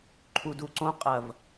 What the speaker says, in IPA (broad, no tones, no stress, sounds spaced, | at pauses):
ǃʰ u d u ǀ õ qʼ ɐ v